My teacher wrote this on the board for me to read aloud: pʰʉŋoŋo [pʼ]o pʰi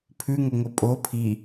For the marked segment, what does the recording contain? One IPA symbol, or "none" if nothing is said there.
pʼ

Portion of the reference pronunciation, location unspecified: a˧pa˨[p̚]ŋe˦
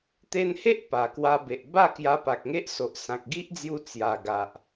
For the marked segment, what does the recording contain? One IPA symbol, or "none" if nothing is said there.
k̚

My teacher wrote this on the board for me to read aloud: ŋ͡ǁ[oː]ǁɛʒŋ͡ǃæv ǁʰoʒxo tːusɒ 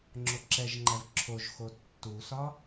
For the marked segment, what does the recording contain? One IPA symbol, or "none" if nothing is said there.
o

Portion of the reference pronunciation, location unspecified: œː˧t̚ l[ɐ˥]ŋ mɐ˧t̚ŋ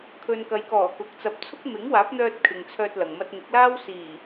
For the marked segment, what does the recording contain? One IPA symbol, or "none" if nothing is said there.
ɐ˨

